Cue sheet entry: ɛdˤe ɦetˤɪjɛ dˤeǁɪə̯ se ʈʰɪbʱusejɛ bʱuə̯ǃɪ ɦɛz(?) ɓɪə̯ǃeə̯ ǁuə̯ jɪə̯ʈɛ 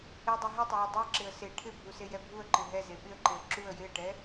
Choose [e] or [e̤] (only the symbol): e